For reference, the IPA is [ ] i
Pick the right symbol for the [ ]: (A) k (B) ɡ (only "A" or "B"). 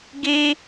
B